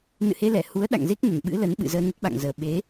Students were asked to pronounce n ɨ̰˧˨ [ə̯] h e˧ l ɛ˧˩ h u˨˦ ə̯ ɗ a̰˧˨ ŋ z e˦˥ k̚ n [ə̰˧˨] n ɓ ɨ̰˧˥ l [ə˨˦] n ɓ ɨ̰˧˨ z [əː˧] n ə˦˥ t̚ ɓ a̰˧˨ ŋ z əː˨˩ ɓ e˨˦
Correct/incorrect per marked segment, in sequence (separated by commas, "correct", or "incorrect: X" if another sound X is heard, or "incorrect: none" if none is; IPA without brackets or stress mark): incorrect: none, incorrect: ə˧˩, correct, correct